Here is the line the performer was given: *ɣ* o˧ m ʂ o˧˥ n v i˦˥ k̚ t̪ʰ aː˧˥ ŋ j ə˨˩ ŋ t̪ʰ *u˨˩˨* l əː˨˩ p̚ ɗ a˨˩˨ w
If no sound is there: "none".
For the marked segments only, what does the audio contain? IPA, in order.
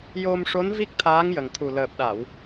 j, u˨˩

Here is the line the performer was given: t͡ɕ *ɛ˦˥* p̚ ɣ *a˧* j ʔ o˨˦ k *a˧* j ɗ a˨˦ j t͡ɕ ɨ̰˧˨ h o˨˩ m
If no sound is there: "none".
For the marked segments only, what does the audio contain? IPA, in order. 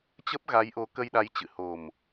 ə˦˥, a˨˦, ə˧

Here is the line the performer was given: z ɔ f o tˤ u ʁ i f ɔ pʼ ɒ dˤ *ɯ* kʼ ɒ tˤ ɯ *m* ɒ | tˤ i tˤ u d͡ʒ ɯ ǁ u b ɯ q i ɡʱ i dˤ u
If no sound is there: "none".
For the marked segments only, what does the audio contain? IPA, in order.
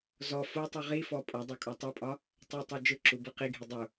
u, pʼ

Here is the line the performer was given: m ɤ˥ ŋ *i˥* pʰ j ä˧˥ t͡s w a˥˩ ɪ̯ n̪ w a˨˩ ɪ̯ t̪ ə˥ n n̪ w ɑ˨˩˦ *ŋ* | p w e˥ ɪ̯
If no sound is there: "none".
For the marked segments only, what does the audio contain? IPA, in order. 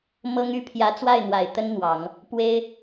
y˥, ŋ

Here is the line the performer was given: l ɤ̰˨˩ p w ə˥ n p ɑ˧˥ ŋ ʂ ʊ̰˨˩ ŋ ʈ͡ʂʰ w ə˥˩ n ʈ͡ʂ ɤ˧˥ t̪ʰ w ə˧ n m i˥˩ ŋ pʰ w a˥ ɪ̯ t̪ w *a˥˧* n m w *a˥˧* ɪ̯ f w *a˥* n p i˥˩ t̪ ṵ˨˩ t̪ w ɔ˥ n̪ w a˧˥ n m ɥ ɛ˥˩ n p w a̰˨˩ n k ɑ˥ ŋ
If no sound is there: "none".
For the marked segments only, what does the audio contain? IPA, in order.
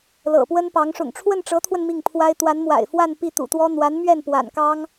a˧˥, a̰˨˩, a˥˧

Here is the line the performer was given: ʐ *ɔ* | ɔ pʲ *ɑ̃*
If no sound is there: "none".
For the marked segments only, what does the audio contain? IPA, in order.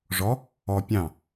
ɔ, ɑ̃

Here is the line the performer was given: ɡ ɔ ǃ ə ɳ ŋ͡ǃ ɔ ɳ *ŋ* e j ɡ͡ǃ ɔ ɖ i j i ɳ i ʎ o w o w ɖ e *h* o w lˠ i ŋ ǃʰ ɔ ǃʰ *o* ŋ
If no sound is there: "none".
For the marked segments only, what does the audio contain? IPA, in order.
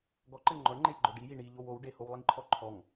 ŋ͡ǃ, h, ɔ

